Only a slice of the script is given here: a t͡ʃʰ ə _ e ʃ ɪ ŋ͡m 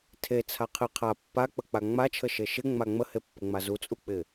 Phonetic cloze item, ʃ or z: ʃ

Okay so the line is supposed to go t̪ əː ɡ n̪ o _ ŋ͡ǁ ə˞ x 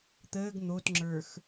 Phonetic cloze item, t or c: t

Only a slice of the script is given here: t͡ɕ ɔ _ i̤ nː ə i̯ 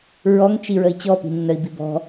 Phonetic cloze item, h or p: p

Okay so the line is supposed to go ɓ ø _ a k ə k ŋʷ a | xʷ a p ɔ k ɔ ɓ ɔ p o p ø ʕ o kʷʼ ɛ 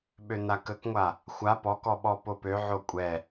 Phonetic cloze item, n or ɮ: n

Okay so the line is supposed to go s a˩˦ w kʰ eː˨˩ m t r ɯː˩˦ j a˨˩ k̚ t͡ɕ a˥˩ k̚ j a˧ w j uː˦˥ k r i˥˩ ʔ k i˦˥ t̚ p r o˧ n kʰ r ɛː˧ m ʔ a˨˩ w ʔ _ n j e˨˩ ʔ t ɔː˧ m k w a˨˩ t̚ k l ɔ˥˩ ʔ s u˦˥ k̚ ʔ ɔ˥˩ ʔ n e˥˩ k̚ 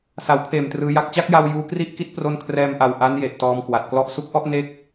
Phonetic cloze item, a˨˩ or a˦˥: a˦˥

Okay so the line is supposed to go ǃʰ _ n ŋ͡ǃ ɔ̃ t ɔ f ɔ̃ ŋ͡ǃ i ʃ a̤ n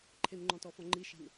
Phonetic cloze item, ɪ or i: ɪ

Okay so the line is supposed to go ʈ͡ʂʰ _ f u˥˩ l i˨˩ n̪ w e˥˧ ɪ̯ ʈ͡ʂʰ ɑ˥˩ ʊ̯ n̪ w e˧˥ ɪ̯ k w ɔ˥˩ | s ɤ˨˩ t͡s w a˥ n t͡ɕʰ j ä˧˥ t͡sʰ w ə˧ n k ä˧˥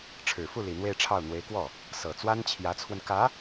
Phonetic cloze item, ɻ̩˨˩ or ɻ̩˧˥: ɻ̩˨˩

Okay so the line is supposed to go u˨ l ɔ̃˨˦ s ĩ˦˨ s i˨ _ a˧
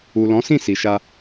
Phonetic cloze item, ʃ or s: ʃ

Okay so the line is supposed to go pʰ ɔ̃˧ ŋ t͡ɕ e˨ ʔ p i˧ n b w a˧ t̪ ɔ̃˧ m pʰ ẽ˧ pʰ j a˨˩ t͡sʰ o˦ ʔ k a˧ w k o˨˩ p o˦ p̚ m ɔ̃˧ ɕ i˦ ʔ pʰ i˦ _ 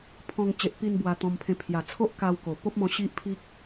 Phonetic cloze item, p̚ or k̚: k̚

